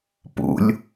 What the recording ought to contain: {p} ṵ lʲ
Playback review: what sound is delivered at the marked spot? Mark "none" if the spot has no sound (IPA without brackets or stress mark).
p